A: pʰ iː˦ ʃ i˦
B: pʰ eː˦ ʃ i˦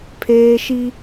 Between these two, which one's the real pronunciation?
B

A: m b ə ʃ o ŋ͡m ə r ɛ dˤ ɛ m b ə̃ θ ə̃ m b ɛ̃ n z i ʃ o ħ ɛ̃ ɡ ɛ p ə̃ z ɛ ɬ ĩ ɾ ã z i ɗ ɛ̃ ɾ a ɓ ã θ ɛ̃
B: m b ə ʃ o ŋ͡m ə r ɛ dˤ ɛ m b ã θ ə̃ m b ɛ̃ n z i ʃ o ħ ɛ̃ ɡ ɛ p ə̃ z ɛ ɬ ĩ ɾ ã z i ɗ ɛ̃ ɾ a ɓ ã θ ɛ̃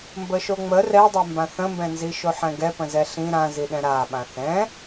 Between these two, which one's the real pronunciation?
B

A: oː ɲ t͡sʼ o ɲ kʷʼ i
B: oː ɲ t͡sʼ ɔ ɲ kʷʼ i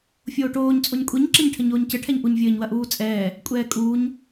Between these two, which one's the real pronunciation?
A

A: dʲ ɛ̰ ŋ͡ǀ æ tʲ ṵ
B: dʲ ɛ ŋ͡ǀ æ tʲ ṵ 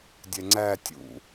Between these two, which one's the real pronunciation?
B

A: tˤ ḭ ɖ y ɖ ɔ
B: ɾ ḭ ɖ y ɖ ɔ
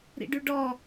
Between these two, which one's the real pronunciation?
B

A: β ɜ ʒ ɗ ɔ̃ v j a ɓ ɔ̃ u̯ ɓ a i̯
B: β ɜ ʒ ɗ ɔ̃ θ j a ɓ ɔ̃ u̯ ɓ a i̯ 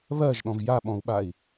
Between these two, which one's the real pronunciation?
A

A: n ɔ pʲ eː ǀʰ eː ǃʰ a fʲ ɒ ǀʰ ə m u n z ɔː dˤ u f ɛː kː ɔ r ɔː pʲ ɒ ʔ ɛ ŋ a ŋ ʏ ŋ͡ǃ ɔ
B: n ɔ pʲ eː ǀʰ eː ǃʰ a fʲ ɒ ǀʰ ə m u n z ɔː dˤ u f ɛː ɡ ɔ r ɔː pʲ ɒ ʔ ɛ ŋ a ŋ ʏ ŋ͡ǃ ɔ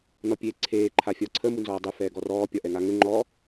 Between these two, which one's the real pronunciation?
B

